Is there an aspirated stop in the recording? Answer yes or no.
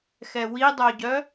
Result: no